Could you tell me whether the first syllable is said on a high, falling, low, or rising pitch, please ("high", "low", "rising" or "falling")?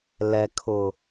low